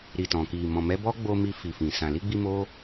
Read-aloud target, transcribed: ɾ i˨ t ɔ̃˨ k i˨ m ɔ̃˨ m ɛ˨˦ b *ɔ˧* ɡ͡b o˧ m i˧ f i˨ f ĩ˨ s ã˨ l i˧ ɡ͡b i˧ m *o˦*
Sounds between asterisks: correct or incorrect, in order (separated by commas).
incorrect, correct